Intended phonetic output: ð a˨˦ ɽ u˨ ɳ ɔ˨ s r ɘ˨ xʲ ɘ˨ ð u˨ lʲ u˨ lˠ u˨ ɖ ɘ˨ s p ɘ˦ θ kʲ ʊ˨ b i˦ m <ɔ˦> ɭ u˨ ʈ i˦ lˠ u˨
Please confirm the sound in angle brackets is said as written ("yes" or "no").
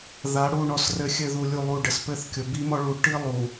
yes